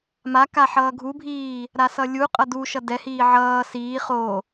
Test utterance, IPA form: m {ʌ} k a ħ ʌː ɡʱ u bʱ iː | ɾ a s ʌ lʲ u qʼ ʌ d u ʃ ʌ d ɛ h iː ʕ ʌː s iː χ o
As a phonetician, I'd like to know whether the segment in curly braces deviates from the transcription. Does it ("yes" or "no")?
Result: yes